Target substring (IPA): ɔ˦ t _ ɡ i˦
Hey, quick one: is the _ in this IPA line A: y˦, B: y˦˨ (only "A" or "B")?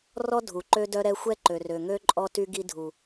A